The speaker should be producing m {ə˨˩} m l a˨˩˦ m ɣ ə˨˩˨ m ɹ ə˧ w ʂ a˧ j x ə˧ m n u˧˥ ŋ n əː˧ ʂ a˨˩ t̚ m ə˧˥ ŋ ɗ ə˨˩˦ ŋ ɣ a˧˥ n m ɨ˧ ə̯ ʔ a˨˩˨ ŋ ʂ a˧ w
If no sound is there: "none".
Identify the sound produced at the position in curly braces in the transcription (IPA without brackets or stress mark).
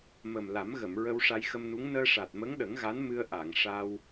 ə˨˩